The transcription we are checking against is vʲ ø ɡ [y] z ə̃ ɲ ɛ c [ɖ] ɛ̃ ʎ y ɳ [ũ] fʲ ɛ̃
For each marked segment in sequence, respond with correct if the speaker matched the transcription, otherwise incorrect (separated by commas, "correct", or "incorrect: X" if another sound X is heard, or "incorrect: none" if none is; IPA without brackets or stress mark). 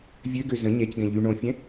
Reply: incorrect: ø, incorrect: ɡ, incorrect: õ